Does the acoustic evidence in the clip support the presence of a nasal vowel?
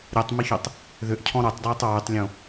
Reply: yes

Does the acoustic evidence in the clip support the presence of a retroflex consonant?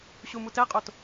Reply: no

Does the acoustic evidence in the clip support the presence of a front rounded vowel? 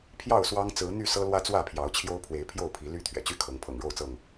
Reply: yes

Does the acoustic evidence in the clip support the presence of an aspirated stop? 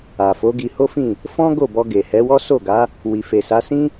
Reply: no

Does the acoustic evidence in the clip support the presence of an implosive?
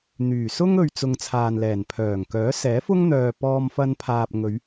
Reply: no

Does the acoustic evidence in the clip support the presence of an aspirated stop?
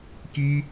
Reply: no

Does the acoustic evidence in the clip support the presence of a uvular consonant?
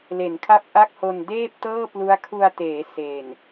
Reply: no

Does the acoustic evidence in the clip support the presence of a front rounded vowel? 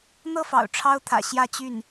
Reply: yes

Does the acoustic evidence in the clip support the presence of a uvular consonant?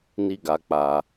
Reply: no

